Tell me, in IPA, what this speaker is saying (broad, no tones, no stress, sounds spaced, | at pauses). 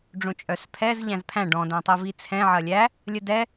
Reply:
ɖ͡ʐ õ t͡ʃʼ œ s pʰ ɛ z ʎ æ̃ z pʰ æ̃ ɖ ɔ̃ d æ̃ tˤ i v i t͡sʰ ɛ̃ ʕ ɐ lʲ æ | lʲ ə d ɛ